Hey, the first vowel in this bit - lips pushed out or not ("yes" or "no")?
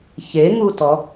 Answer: no